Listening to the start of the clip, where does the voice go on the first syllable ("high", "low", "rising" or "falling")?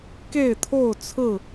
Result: falling